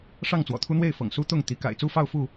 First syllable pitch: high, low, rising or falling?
falling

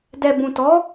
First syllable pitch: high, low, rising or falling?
low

